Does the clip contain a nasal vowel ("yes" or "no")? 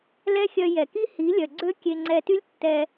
no